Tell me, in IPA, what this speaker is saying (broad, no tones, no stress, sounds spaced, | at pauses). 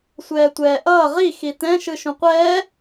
sʷ ɛː tʷ ɛː ʔ ʌː ʁ i x i t ɛ̃ ʃ ɯ ʃ ũ qʷ ɛː